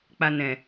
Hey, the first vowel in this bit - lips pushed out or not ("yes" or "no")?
no